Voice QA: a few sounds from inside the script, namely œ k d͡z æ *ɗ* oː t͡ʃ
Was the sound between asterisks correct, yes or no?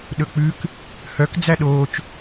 yes